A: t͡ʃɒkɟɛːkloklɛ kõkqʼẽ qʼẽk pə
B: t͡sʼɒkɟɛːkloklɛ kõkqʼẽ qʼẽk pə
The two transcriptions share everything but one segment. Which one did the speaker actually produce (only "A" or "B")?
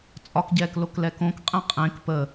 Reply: B